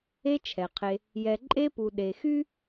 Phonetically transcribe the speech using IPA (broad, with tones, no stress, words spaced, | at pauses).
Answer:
e˦t͡ʃʰɛ˩qʰe˨ | jɛ˨ǃʼe˦pu˨ ɗe˨xy˥